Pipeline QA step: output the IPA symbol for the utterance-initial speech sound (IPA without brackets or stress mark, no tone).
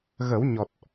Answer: ɣ